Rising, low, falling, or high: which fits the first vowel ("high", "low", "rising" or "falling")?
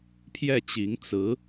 falling